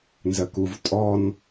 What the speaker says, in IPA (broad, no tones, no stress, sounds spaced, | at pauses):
n z ɜ k u v tʼ ɔ n